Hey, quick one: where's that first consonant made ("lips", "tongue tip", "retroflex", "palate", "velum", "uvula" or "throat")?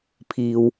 lips